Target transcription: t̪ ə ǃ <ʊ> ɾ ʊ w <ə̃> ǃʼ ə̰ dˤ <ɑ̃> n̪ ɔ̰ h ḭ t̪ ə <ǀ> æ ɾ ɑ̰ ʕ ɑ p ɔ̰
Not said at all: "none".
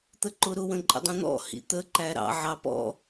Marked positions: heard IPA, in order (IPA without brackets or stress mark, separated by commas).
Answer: ʊ, ə̃, ə̃, ǃ